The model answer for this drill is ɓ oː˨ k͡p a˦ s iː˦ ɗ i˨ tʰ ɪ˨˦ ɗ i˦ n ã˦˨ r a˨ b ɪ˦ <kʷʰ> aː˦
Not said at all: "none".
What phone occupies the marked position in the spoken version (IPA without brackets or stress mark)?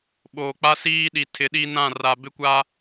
kʷ